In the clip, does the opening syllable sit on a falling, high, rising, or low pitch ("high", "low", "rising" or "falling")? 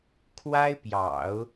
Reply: high